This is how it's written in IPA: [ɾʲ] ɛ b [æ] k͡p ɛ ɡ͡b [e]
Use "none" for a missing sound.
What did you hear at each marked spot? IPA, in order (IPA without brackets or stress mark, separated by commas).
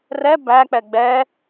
r, æ, ɛ